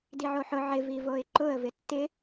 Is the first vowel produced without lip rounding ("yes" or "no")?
yes